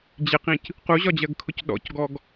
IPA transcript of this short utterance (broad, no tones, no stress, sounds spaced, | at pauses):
d͡ʑ ɪ q ĩ c | q u ʑ ɒ d͡ʑ ɜ ɡ kʰ ʊ c ɗ ɔ̰ c ɡ ɔ ɡ